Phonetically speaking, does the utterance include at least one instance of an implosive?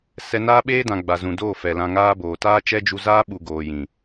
yes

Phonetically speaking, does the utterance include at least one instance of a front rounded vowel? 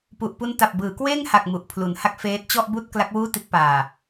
no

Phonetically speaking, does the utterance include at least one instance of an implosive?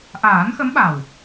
yes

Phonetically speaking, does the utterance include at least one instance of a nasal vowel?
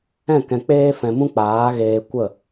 yes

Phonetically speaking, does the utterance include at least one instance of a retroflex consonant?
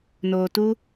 no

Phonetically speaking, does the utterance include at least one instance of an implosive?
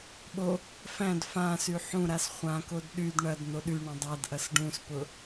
yes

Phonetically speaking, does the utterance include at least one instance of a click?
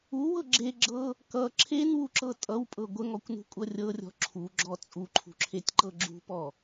yes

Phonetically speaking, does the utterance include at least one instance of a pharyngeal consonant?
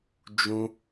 no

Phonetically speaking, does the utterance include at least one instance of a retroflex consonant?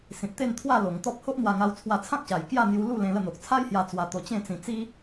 no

